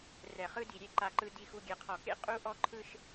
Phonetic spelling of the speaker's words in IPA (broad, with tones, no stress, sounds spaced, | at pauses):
r ɛ˨ χ ɯ˦ d i˨ ɾʲ e˦˨ ǃ a˨ ǃ ɯ˨ d i˨ x u˨ ɡʲ ɛ˨ qʰ ɔ˨ k ḛ˦ qʼ u˦ ʔ ɔ˦ ǃʰ ɯ˦ ʃ